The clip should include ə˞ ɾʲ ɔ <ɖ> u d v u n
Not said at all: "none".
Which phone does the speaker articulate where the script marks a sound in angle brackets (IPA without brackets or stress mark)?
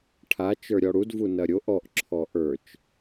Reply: ɽ